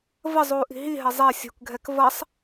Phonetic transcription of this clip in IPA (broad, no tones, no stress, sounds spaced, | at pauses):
v ə zˤ uː ʔ i̤ ɦ i ɦ ɛ zˤ ɛ sʲ ṳ k ɡʱ ɛ k v ʌ sˤ